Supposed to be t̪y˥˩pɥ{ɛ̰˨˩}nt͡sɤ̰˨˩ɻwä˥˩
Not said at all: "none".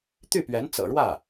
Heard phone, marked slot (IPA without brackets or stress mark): ɛ˧˥